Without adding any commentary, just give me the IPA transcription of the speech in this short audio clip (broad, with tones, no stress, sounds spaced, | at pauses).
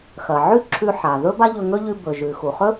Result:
x ɐ˩ ʕ ʉ˥ ǁʰ ʉ˧ ħ a˩ ð ɵ˥ b a˥ ʎ ɵ˧ ŋ ɵ˥ ʎ ʉ˧ b ɵ˩ ʒ ʉ˩ x u˩ χ ɵ˥